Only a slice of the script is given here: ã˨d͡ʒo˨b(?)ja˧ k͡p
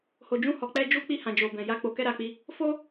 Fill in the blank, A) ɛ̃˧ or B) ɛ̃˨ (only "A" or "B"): B